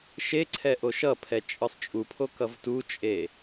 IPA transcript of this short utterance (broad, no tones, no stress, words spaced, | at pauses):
ʃeǀʰɛ ʔoʃʌpʰɛ t͡ʃʼɯsˤt͡ʃʼupʰo kʌvtut͡ʃʼe